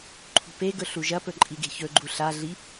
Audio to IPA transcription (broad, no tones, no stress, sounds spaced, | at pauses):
ǃʰ ṳ p e ɡ ɵ ɬ u ʒ ɐ p ɵ ǃʼ i ɡ e̤ ç ɵ ɡ͡ǃ u ɬ a ɮ i